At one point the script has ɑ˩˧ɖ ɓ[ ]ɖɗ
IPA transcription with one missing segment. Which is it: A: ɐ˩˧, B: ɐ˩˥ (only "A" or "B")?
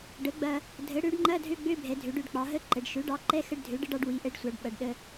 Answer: A